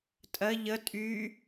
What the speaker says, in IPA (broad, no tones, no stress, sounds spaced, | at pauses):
tʼ ɜ ʎ ə tʼ y